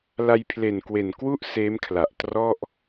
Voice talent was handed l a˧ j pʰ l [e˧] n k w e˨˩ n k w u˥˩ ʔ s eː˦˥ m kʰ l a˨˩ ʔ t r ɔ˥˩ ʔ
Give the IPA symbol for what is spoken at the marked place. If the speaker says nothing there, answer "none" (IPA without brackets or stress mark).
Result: e˨˩